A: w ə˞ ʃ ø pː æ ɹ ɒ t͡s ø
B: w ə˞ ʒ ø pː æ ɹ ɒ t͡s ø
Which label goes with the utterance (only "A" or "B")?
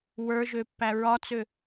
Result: B